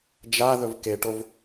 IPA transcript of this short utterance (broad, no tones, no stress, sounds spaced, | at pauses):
d͡ʒ a ð ɵ v k e ʈ o v